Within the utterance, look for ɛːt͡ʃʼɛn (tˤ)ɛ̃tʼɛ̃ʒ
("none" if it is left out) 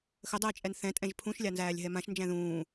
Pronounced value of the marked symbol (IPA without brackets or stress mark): θ